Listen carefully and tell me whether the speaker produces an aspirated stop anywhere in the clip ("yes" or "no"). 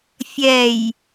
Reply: no